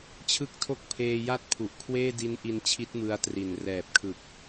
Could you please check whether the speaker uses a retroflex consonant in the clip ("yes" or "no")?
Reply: no